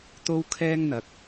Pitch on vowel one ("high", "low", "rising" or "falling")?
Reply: high